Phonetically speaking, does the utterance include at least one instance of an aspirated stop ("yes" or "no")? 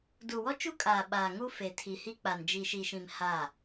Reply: yes